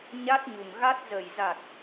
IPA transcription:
ɲ a˦˥ t̚ ɲ u˨˩ ŋ ɣ a˦˥ t̚ z ə˨˩ j z a˨˩ t̚

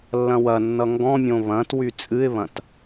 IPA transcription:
lː ɐ̃ w ɐ nː ʌ ŋ ɡ ɔ̃ mʲ õ β ɐ̃ t w y t͡sʼ ɨ ɪ̯ β ɐ̃ t

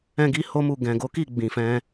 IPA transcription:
ɛ̃˦ ɡ i˦ h o˦ m u˦˨ ɡ ɛ̃˨ ɡ o˨˦ k i˦˨ ɡ͡b ĩ˨ f ɛ̃˧

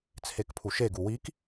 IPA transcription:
t͡sʰ e k pʰ u ʃ e ɡ u w i k

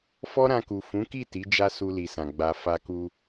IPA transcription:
f ɔ˦ ɾ ã˧ k u˨ f ũ˨˦ k i˦˨ t i˨˦ d͡ʒ a˦ s u˧ l i˨ s ã˨ ɡ͡b a˧ f a˧ k u˧

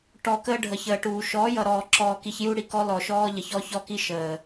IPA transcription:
ʈ ɔ˨ k əː˦ ɖʱ ə˨ ç əː˨ ʈ uː˨ ʃ ɔː˨˦ j ʌ˨ ɾ ɔː˨ ǁ ɔː˨ k i˨ ç j u˦ ɽ i˨ k ɔ˦ l ɔ˨ ʃ ɔː˦ ʎ ə˨ ç ɔ˦ ç ɔ˦ k i˦ ʃ əː˨

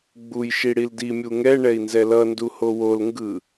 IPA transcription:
ɡ͡b u j ʃ i ɽ i l d i mʲ u ŋ ɛ ɳ ɛ i̯ n z ɛ l ʌ n d u h o w o l ŋ ɡ ɯ

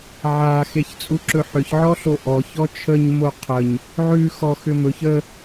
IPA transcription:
ʕ a x e ç t͡sʼ u ǁ ɵ ħ ʏ ç ʕ ɔ ɬ o ʔ ɔ ç ɔ t͡ʃʰ ə ɲ m o qʰ ə ɲ | ʕ ʉ x ɔ x ʏ m ɵ ç ə

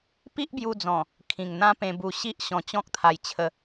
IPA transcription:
p i˦ ʔ b j u˧ d͡z ɔ̃˨˩ | kʰ ĩ˨˩ ŋ n̪ ã˦ p ẽ˧ b u˧ ɕ i˦ ʔ ɕ ɔ̃˧ t͡ɕ ɔ̃˦ k̚ t̪ʰ a˧ j t͡ɕʰ ə˧

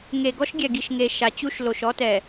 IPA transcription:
ŋ e˨ ɡ ɔ˦ ʃ ɡʲ ɛ˨ ɡ i˨ ʃ ŋ e˨ ʃ a˨ t͡ɕ u˦ ʃ l o˨ ʃ ɔ˦ t ɛ˨

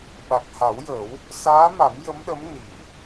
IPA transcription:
ɓ a˨˩ k̚ h a˨˩˦ w j ə˨˩˦ w | s aː˧˥ m a˨˩˦ m j ə˧˥ m ɗ ə˧˥ m n i˨˩˨

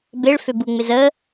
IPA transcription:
b e ɭ f ø b u ŋ͡m ɪ z ə

